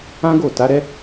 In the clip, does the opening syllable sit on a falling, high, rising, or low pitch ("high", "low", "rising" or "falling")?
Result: high